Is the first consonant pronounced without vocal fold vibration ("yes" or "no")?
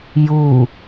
no